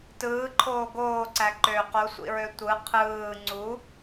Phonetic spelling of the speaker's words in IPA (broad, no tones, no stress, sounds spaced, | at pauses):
t ɯː ǃʰ oː ɡ oː ǀ æ ǃ ø q o sʷ ḭ ɹ ø tʷ ɯ qʰ ɯː ŋ͡ǀ u